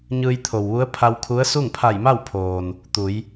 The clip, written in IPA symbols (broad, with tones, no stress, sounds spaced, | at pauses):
ɲ ɯː˧ j t̪ʰ o˩ w ʋ u˧˥ ə̯ pʰ a˧ w kʰ u˧˥ ə̯ s u˥˨ ŋ pʰ a˧˩ j m a˥˨ w pʰ oː˩ n | t̪ u˩˧ j